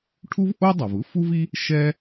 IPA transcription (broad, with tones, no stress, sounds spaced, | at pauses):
ʈʰ u˥ v ʔ o˥ dˤ ɐ˩ v ɯ˥ f u˥ v i˥ | ʃ ɛ˥